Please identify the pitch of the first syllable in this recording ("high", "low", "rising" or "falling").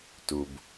low